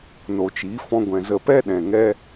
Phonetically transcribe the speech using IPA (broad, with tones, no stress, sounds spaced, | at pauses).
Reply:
n o˨ t͡ʃ iː˨˦ f ɔ̃˧ ɡʷ ɛ̃˨ z ə˧ p ɛ˦ ɗ ɛ̃˨ ŋ ɛ˦